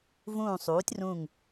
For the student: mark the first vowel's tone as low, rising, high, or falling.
falling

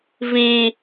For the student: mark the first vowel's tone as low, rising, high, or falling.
low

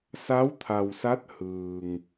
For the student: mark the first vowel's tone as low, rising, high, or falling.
rising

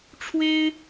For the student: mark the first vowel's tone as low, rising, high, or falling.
high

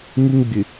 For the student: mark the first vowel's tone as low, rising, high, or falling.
high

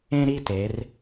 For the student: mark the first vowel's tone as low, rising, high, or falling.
high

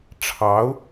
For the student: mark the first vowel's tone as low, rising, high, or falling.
rising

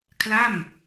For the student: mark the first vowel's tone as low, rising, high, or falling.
falling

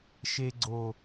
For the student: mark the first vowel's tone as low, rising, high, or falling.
high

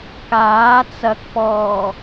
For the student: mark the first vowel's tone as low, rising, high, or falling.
rising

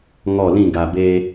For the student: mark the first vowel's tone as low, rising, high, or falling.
falling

